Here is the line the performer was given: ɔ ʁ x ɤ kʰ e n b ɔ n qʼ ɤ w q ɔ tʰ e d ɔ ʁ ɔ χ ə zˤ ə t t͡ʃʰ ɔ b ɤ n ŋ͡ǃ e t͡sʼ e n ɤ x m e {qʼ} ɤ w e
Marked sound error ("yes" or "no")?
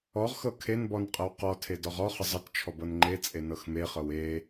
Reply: yes